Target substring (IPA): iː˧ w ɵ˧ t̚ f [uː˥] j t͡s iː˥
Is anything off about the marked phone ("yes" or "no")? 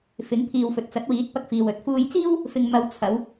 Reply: no